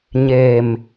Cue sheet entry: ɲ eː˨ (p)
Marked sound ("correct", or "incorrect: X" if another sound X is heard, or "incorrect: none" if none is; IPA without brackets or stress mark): incorrect: m